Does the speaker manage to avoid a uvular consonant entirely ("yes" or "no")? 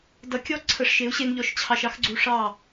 yes